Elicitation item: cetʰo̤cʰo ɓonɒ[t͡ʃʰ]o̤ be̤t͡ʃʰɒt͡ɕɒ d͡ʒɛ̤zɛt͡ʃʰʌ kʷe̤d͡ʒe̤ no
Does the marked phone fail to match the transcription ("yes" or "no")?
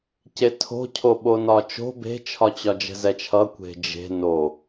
yes